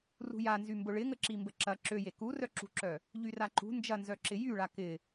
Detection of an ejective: absent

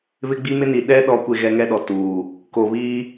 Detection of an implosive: present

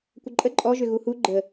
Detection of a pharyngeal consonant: absent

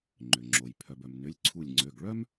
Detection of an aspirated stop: present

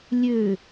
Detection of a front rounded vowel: present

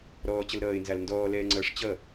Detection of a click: present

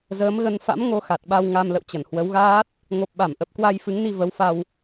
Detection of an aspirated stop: absent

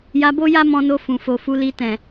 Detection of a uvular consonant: absent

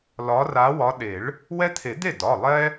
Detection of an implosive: present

